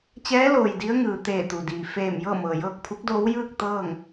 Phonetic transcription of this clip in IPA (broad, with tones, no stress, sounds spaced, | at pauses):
t͡ɕ ɛː˧˥ l oː˩ j d i˧˥ ə̯ ŋ ɯː˩ t̪ eː˧˩ t̪ u˩ d iː˩ f eː˧˩ m j ɤː˥˨ m ɤː˩ j ɤː˥˨ k̚ pʰ u˧˥ k̚ d oː˧˥ w j ɯː˥˨ k̚ t̪ ɤː˥˨ ŋ